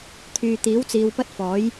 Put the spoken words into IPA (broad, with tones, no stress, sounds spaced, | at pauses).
t̪ʰ yː˨ t̪ iː˨˥ w t͡s iː˨ w p ɐ˥ t̚ f ɔː˨˥ j